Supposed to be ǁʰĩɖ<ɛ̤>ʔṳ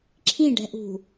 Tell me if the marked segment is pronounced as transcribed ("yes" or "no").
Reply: yes